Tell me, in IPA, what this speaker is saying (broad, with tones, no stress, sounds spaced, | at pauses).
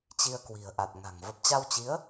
t͡ɕ i˧ ə̯ k w i̤˨˩ ə̯ ʔ a˨˩ t̚ ŋ a̤˨˩ ŋ v ə˨˩ p̚ t͡ɕ a˧ w t͡ɕ i˨˦ ə̯